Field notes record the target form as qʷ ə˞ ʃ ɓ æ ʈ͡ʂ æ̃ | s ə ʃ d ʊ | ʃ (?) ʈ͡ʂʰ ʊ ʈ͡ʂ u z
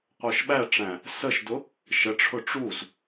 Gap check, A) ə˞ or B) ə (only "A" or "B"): B